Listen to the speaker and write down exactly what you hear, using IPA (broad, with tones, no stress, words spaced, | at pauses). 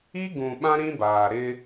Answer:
i˦ ɡũ˨ɓã˦ ɾĩ˦baː˨ɾɪ˦